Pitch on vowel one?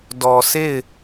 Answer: low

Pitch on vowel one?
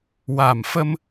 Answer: low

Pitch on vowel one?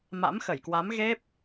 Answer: rising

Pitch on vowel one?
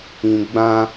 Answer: low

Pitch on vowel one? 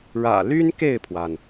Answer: low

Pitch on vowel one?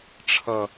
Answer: low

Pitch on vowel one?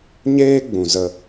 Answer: high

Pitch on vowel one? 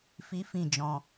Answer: high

